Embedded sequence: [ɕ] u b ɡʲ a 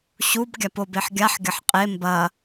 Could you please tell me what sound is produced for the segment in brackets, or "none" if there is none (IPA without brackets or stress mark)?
ɕ